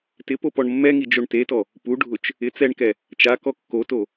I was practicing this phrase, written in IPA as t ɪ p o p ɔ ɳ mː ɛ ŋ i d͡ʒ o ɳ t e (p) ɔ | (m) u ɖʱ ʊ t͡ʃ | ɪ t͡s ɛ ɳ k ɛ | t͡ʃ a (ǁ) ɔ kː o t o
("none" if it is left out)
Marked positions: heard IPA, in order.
t, p, k

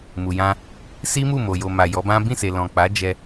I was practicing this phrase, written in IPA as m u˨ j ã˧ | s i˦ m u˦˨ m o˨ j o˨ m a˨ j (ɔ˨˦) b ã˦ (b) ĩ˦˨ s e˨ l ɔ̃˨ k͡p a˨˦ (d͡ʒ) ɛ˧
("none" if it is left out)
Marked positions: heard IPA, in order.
ɔ˨˦, b, d͡ʒ

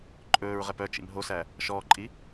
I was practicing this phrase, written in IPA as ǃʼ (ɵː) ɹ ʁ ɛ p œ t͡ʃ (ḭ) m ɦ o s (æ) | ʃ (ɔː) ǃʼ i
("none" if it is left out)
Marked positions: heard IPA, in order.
ɵː, ḭ, æ, ɔː

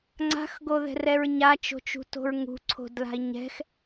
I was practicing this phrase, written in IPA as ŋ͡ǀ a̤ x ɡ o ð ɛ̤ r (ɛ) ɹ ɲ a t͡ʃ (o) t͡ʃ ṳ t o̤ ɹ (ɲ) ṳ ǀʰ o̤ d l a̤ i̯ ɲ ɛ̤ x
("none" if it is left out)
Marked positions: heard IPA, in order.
ɛ, o̤, ŋ

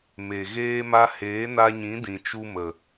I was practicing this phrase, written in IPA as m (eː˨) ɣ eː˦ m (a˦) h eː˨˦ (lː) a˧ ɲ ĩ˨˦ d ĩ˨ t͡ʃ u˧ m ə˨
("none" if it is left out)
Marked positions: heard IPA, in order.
e˨, a˦, n

